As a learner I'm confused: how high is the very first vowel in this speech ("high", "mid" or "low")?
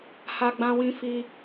low